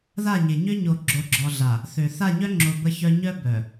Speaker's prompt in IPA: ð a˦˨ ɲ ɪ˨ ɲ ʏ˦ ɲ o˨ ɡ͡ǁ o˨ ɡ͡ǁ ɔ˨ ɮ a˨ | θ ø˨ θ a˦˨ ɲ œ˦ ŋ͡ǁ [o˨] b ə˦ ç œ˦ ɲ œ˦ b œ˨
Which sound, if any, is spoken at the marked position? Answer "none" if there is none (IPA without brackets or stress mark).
o˨